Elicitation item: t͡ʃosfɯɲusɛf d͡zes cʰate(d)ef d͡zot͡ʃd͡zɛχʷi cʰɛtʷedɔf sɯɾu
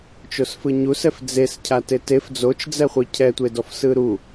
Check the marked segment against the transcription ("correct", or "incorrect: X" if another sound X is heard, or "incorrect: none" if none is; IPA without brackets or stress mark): incorrect: t